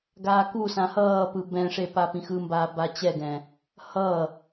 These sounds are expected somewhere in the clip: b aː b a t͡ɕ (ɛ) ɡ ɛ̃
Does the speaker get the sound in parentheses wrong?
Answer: no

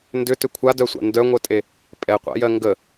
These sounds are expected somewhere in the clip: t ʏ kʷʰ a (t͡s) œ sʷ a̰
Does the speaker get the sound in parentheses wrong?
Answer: yes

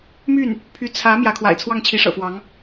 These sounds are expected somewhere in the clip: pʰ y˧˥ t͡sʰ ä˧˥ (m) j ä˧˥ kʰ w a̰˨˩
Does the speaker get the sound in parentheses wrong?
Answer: no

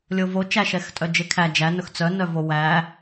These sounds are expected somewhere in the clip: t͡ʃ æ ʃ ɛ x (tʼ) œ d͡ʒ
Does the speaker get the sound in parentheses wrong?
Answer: no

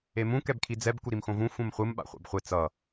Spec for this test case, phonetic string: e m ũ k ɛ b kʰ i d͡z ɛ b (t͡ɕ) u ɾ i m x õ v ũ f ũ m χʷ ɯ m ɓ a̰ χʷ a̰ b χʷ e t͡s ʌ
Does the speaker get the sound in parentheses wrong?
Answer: yes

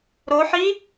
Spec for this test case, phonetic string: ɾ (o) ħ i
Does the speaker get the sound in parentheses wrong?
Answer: no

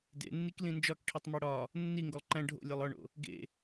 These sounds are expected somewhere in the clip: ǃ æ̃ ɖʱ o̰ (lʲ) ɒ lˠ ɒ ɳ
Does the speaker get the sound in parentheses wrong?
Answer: no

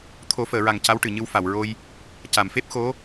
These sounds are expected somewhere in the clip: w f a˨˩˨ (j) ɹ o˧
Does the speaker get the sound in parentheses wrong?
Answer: yes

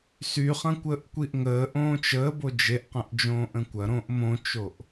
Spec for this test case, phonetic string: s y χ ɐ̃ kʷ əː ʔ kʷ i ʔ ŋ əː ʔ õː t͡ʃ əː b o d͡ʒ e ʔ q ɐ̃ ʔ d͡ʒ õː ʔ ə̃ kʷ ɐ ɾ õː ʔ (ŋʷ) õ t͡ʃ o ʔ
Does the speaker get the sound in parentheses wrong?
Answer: yes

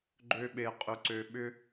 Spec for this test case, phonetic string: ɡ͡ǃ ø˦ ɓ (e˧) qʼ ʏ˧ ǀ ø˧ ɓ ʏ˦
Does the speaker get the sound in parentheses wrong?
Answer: no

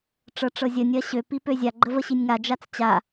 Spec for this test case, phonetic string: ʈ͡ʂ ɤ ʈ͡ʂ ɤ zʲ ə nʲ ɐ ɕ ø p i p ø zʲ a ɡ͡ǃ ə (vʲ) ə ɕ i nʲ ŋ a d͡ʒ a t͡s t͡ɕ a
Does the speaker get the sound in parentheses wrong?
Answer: yes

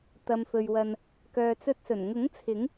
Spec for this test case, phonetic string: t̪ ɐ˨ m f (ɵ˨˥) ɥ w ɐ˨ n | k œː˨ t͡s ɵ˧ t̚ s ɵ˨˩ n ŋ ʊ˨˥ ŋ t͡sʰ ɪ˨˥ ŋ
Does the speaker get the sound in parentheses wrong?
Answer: yes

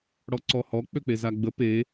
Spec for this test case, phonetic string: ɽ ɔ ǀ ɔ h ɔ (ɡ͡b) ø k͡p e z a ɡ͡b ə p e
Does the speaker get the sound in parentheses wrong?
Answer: yes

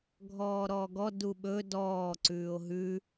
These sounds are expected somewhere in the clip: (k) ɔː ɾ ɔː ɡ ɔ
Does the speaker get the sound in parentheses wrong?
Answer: yes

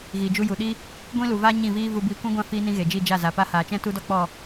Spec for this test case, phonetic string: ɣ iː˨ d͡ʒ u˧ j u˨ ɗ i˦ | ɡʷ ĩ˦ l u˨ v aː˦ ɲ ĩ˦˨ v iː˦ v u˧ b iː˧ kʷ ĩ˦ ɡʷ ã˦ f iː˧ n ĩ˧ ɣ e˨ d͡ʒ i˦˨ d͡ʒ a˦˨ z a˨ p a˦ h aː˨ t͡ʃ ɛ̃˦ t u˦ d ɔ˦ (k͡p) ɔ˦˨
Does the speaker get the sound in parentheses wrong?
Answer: no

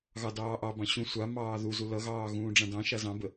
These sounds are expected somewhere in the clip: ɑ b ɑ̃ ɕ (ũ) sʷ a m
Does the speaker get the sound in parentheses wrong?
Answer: no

